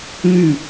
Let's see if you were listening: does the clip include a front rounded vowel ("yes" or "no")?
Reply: yes